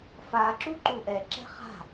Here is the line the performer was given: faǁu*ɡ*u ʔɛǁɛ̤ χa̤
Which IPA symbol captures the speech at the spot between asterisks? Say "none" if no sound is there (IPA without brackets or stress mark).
ǃ